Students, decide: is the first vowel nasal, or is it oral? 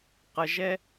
oral